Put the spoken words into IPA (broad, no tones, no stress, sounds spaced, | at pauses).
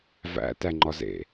v æ̰ t æ ŋ͡ǃ ɒ z ḛ